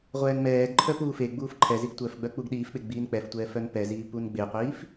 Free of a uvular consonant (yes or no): no